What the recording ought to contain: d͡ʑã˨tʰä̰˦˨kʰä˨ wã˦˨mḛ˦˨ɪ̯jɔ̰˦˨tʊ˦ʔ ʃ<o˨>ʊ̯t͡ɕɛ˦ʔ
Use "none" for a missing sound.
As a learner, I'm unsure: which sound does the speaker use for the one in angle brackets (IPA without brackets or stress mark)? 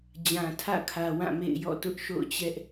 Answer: o̰˦˨